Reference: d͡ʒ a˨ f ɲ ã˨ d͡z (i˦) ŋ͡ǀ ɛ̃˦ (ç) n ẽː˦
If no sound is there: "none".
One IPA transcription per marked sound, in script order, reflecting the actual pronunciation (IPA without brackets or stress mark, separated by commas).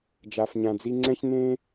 i˧, ç